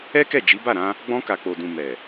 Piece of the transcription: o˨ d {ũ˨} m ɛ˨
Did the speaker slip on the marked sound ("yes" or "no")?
no